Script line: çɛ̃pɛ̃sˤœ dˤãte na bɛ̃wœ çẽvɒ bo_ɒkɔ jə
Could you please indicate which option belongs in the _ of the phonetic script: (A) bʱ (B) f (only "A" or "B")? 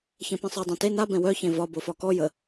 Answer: B